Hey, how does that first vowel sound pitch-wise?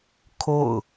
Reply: falling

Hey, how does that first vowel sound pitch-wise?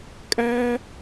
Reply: high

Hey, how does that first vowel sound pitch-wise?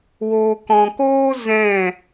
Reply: low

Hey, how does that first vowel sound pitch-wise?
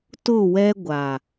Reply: falling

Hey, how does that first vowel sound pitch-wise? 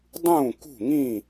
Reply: falling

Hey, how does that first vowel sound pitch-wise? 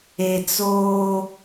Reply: low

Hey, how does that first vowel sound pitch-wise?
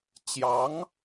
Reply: rising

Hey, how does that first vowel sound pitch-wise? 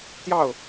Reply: falling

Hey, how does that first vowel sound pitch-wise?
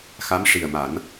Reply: rising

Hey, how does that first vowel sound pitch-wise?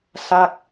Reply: falling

